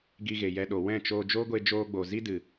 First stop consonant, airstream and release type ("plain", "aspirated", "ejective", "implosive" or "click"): plain